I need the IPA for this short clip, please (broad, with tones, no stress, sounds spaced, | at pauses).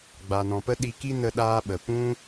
ɡ͡b a˨ n ɔ̃˨ p ə˦ ɗ i˧ k i˦ n ə˦ ɗ aː˦ ɓ ə˨ p ũ˦